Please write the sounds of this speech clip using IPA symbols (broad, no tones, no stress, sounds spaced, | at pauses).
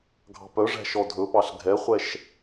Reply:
ɡʱ ɑ̤ p œ ʐ æ̤ ʃ ɔ dʱ ɵ p ɑ ɬ ɡʱ ɛ χʷ ɛ ʃ